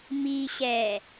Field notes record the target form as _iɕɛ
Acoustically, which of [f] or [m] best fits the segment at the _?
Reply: m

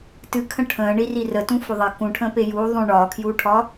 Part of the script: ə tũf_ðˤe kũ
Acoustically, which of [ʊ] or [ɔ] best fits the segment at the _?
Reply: ʊ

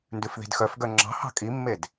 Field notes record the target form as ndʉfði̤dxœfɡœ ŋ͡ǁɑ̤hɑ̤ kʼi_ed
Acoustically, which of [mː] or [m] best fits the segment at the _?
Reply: mː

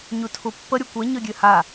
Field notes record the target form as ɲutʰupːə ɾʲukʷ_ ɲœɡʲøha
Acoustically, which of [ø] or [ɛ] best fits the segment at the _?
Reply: ɛ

